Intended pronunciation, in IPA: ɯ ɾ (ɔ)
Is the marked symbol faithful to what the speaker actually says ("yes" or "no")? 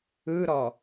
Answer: yes